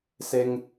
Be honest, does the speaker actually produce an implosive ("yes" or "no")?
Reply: no